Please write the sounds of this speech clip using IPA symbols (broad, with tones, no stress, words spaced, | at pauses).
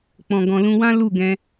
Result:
k͡pɔ̃˨ɡɔ̃˨ lũ˧wã˦ lu˦˨ɡɛ̃˧